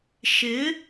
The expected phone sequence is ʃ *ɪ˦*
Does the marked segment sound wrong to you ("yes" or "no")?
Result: yes